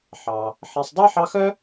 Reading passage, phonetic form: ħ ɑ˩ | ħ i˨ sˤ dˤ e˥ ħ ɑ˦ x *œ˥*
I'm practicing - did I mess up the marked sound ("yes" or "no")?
no